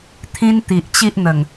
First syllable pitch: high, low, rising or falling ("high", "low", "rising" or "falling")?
high